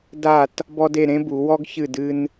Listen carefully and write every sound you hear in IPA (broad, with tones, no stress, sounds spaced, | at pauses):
d a˥˧ t | b ɔ˥ d e˥˧ ɾ ẽ˥ b u˨˦ w ɔ˥ ɡ ç ɨ˥˧ d ɨ˥ n